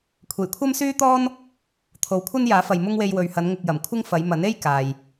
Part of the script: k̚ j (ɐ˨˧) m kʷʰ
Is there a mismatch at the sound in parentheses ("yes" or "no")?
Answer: yes